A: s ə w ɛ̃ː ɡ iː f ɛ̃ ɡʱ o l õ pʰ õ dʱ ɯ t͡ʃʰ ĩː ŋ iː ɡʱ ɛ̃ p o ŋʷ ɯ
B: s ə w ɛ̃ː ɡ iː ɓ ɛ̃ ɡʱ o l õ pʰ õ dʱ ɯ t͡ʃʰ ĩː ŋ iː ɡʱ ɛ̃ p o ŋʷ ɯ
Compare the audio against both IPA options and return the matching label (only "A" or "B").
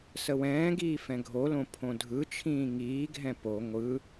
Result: A